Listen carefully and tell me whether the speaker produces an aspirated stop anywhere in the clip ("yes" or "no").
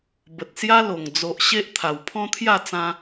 yes